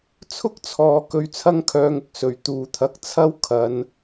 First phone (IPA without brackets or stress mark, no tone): t͡sʰ